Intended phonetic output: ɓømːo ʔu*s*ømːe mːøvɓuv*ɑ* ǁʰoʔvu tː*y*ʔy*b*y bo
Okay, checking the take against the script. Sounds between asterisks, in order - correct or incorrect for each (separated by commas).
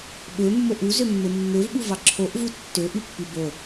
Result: incorrect, correct, incorrect, incorrect